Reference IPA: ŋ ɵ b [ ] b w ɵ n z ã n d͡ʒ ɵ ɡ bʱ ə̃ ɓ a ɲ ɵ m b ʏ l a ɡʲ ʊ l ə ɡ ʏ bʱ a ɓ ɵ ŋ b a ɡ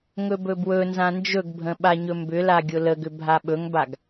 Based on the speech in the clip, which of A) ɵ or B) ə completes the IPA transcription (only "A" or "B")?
A